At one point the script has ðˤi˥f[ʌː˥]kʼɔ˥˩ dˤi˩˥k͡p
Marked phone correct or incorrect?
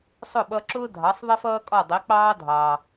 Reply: correct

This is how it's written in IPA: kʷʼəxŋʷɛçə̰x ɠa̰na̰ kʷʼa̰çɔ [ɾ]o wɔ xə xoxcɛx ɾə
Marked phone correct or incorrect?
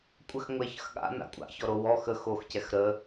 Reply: correct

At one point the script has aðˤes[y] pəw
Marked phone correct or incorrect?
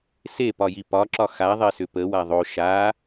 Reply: incorrect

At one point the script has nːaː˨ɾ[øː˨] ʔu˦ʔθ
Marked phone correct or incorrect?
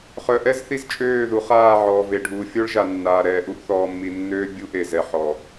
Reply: incorrect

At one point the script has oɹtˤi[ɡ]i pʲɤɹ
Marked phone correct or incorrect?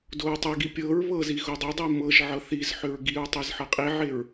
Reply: correct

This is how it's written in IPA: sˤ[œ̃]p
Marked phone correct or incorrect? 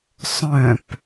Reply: correct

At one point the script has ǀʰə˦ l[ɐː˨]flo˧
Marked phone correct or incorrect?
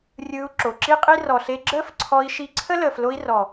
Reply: incorrect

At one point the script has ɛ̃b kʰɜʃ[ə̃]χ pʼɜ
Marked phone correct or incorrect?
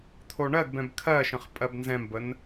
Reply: correct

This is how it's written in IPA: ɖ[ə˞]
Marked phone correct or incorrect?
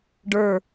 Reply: correct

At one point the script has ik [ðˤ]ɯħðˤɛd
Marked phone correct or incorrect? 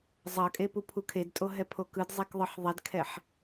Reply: correct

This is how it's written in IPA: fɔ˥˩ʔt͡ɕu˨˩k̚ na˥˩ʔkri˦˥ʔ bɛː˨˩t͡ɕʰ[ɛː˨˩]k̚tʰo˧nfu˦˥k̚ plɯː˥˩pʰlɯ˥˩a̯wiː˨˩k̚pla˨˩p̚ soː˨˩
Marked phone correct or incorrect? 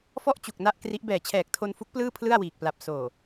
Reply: correct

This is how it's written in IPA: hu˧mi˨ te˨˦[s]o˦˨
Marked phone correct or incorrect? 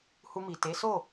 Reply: correct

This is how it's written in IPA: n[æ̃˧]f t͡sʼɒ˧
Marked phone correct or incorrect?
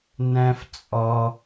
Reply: correct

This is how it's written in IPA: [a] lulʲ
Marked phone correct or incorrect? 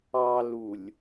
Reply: incorrect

